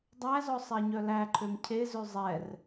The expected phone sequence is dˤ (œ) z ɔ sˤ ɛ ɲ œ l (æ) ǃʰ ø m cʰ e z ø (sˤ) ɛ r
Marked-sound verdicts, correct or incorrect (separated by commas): incorrect, correct, incorrect